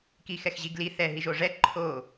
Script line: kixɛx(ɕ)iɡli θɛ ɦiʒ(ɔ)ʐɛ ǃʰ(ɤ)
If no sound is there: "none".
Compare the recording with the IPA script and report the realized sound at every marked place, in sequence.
ʑ, o, o

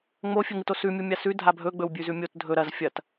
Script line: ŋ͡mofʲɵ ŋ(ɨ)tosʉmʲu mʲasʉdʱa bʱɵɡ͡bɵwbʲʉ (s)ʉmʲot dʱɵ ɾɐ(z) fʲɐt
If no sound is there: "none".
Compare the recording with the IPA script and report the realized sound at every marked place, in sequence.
ɨ, z, z

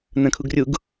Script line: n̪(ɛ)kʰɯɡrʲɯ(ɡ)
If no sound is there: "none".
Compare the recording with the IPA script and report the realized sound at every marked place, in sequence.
ɛ̃, ɡ

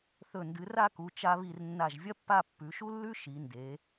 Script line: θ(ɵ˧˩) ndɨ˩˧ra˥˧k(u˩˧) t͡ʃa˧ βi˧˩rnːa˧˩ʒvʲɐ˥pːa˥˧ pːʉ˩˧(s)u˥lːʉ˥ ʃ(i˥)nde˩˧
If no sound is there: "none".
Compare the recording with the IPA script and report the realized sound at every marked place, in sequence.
ɵ˧˩, u˩˧, ʃ, i˩˧

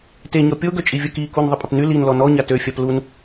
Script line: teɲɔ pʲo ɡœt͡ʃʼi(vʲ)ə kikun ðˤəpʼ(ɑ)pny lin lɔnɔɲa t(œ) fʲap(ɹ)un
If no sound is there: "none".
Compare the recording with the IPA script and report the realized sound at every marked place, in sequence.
vʲ, ə, ø, l

